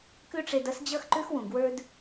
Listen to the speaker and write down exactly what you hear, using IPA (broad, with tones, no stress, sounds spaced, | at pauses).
k ʉ˥ ʈ͡ʂ e˧ d ʌ˥ s d͡ʑ ʌ˥ x ǃ ʉ˥ x w ũ˩ ɡ w ə˞˥ d